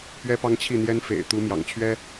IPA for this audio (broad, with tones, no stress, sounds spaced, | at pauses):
p ɥ ɛ˥ p ɑ˥ ŋ t͡ɕʰ i˥˩ n̪ j ɛ˥ n f ḛ˨˩ ɪ̯ t̪ u˧˥ m j ɑ̰˨˩ ŋ t͡ɕʰ ɥ ɛ˥